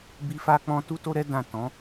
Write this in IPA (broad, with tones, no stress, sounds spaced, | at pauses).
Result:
b i˦ f a˦ k͡p ɔ̃˦ t u˦ t o˦ ɾ ɛ˦ d ã˦˨ t ɔ̃˨˦